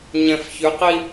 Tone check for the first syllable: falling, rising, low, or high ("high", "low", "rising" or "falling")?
low